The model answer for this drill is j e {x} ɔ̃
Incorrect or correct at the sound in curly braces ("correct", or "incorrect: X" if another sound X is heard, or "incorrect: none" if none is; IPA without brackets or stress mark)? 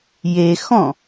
correct